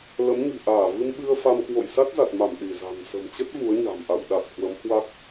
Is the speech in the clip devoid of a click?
yes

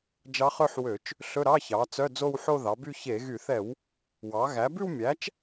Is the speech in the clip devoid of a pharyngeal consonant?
no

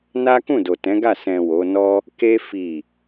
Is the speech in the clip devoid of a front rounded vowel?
yes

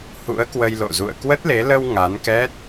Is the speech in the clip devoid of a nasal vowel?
yes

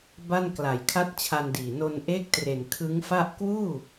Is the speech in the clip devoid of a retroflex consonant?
yes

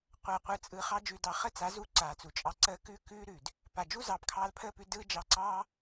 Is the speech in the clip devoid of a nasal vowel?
yes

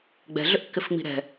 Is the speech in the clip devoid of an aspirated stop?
yes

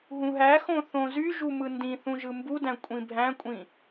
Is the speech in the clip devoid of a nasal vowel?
no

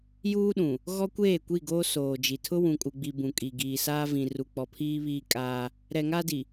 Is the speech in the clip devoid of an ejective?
no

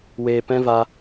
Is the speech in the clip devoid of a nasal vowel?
no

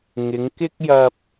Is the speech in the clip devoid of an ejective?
yes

